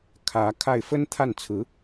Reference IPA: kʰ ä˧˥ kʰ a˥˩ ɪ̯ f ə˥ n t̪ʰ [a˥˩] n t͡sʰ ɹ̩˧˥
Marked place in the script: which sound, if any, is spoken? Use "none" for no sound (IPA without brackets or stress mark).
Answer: a˥˩